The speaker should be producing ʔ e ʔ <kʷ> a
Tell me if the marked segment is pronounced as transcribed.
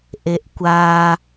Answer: yes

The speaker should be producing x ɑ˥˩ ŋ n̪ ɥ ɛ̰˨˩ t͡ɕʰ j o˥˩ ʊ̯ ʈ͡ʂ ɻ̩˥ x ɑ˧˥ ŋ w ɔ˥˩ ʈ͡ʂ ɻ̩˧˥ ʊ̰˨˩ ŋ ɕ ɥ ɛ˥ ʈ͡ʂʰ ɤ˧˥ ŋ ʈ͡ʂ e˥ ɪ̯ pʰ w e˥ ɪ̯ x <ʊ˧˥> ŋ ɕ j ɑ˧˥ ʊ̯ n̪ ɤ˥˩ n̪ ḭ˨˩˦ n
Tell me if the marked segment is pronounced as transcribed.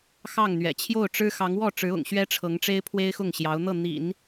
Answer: no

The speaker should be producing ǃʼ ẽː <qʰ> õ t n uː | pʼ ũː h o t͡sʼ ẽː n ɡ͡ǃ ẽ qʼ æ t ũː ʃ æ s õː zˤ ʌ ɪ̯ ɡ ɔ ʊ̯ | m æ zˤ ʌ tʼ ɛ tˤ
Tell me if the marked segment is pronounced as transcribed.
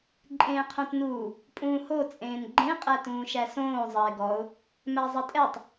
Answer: yes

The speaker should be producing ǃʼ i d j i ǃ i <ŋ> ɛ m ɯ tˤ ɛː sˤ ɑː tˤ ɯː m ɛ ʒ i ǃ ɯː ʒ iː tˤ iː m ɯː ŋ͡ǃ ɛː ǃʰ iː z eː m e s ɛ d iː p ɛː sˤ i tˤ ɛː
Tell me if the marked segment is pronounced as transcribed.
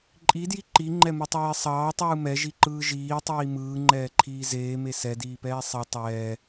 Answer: no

